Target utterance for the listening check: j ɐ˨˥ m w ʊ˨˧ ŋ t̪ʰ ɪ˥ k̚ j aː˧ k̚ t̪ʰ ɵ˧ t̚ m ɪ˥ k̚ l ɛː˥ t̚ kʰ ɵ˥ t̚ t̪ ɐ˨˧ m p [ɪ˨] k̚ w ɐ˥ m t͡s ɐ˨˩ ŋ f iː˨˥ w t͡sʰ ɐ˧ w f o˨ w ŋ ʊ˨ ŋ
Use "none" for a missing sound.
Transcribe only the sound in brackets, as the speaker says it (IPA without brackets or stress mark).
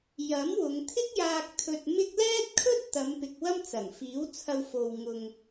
ɪ˨